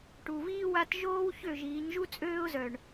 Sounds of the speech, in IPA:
ʈ u˨ v iː˦ w a˦ t ʒ oː˦ w ç ø˦˨ ʒ iː˨˦ ɲ ʒ u˦ t͡sʼ øː˦ ʊ̯ z œ˨ ɳ

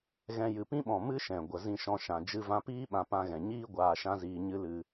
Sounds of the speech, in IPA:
ɣ ɛ̃˧ j ɨ˨ p ĩ˦ ɓ ɔ̃˨ m ɨ˦ ʃ ɛ̃˨ ɡʷ ə˧ z ĩ˦ ʃ ɔ̃˦ ʃ ã˧ d͡ʒ ɨ˧ v ã˧ p iː˦ ɓ ã˧ p ã˧ ɣ ɛ̃˨ ɲ iː˦ ɡʷ aː˧ ʃ ã˦ z iː˧ ɲ ɨ˦ l ɨ˧

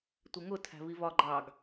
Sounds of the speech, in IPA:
tʷ ɪ ŋ ʊ tʰ æ̤ v i v ɒ ɡ͡ǃ ɑ ɡ

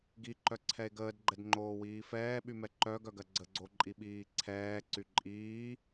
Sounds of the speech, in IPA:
ɡ i ǃ œ ǀʰ ɛ e̯ ɡ əː d ɡ͡ǃ ɛ d ŋ͡ǃ oː w iː f ɛː ɓ y m ɛ ǃ œ ɡ œ ɡ ɜ ɡ͡ǀ ə ɡ͡ǀ o ǃʼ i ɓ iː ǀʰ ɛː ǀ y ǃʼ iː

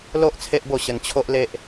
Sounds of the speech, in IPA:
l o˦ ʔ t͡sʰ e˦ ʔ b o˥˧ ɕ ə˧ n t͡ɕʰ o˦ ʔ l e˦ ʔ

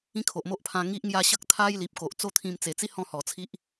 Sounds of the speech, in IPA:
ĩ˦ kʰ o˨ ʔ m o˦ ʔ pʰ ã˧ ŋ i˦ ʔ ŋ j a˦ ɕ ə˦ k̚ t̪ʰ a˦ j l i˨ p̚ k o˨ ʔ t͡s o˦ t̪ʰ ĩ˧ m t͡s e˨˩ t͡s i˦ h ɔ̃˥˧ h ɔ˨˩ t͡sʰ i˦ ʔ

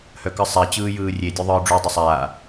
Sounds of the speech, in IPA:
h œ k ɯ sˤ a t͡ɕ ɯː j ɯː rʲ e dʲ œ ðˤ ɯː ɖ͡ʐ u dˤ i sˤ aː

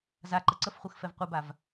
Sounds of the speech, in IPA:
z a ǃ ə ǀ ə f χʷ ɯ x f ɛ v qʷ ɯ b a v

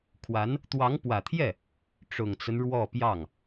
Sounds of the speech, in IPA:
kʰ w a˧˥ n | t̪ w ɑ˧˥ ŋ p w ä˨˩ t̪ʰ j ɛ˥˩ | ʈ͡ʂ ʊ˨˩ ŋ t͡s ə˦ n ɻ w ɔ˥˧ p j ɑ˥˩ ŋ

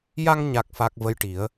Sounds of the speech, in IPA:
j a˧ ŋ ɲ a˨˩ k̚ f a˨˩ k̚ v ə˧˥ j ʈ i˨˩˦ ə̯

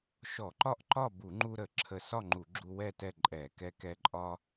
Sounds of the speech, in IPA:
ʃ ɔ˧˩˧ ǃ ɒ˥˨ ʔ ǃ ɒ˥˨ b u˧˩˧ ŋ͡ǃ u˧ ɾ ə˧˩˧ ǁʰ ə˧ s ɒ˥˨ ŋ͡ǃ u˧˩˧ ɡ͡ǁ u˧ w ɛ˥˨ t ɛ˥˨ ǃʼ ɛ˧˩˧ k ɛ˧ k ɛ˧ ǃʼ ɒ˧

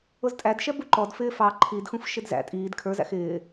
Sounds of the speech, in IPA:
ʊ z tʼ æ d ʃ ɛ b u ǃ ɔ d f ɪː f ɑ ǃʰ i d x ũ f ʃ ɪ d z æ̰ tʼ iː d kʰ ə˞ z æ̰ x ɪː

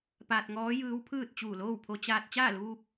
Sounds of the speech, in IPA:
p aː˧ t̚ ŋ ɔː˧˥ j ɯː˧˥ w pʰ ɯː˥˨ t̚ t͡ɕ uː˧˩ l oː˥˨ w pʰ o˧ t͡ɕ aː˧ t̚ t͡ɕ aː˥˨ l uː˧ p̚

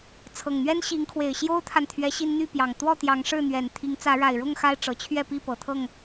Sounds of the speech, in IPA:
t͡sʰ ɤ˨˩ ŋ n̪ ɥ ɛ˦ n ɕ i˨˦ ŋ kʰ w e˨˩ ɪ̯ ɕ j o˦ ʊ̯ t̪ʰ a˨ n t̪ʰ ɥ ɛ˨˦ ɕ i˦ n n̪ y˥˨ p j ɑ˨˩ ŋ t̪ w ɔ˥˨ t̪ j ɑ˨˦ ŋ ʂ ɻ̩˥˨ n̪ ɥ ɛ˨˩ n t̪ʰ i˨˦ ŋ t͡s ä˨˦ ɻ a˨˩ ɪ̯ ɻ ʊ˥˨ ŋ x a˦ ɪ̯ ʈ͡ʂ ɤ˨˩ t͡ɕʰ ɥ ɛ˥˨ p i˥˨ p ɤ˨˩ t̪ʰ ɤ˥˨ ŋ

